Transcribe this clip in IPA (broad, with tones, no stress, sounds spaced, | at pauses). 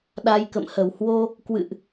ɗ a˧ j k ə̰˧˨ m h ə˧˩ w h w o˧ | k w ɨ̰˧˨ ʔ